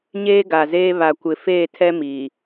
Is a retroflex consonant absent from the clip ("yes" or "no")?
yes